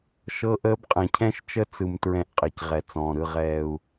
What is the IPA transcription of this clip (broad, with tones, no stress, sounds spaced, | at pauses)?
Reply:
ʃ ɤ˦ ʔ əː˦ b qʼ ɛ̃˨ cʰ ɛ̃˦ ʃ t͡ʃ ə˦ t͡s ɯ˨ m t ɹ ɛ̃˦˨ ʔ qʼ ɛ˨ c ʁ ɛ˨ t͡s ɔ̃ː˨ ɾ ɯ˨ ʁ ɛː˨ u̯